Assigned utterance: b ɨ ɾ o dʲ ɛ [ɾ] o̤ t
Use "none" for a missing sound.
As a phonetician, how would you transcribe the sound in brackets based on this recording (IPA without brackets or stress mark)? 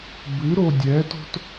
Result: t